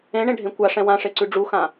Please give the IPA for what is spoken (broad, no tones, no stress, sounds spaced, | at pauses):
ẽ ɳ ẽ ɖʱ ẽ kʷ a ʂ ɛ̃ w ã ʂ e ǀ ʉ ɖ͡ʐ u x ã